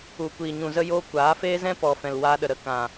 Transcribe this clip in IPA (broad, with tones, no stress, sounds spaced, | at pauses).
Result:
u˨ kʷ iː˨ ɲ ũ˨ z ə˦ j oː˦ kʷ aː˨˦ f eː˦ z ɛ̃˦ p ɔ˨ f ɛ̃˨ l w aː˧ ɗ ə˨ ɾ ə˧ k ã˨